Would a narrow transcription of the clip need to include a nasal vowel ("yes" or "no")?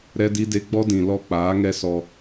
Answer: yes